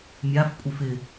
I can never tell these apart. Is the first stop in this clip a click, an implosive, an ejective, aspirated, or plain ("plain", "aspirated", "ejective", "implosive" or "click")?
ejective